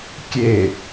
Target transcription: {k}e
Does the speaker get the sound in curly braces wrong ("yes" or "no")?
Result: yes